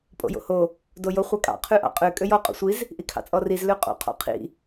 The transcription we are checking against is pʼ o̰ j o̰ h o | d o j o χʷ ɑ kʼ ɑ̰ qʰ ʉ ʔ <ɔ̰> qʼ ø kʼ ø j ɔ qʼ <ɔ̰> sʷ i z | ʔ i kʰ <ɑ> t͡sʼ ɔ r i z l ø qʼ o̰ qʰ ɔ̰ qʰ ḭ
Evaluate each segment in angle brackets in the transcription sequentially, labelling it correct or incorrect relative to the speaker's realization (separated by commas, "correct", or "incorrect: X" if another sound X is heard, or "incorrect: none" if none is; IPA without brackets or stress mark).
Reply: incorrect: ɑ̰, incorrect: o̰, incorrect: ɑ̰